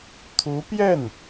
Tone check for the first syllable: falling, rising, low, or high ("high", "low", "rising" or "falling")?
rising